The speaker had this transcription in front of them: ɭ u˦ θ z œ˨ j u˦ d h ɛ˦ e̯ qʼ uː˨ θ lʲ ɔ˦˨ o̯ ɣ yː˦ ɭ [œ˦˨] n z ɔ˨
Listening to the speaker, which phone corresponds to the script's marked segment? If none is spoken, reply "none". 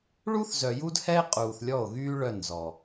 œ˦˨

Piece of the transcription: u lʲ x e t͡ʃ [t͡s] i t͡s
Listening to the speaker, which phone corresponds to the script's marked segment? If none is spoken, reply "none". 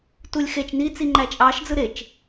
n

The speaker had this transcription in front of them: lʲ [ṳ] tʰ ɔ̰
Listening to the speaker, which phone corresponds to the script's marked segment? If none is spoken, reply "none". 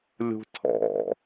ṳ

